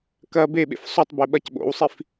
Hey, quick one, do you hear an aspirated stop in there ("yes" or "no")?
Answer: no